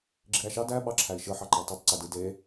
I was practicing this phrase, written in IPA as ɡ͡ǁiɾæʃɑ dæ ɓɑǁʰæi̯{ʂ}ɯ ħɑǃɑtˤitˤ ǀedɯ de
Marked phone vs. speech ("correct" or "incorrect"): incorrect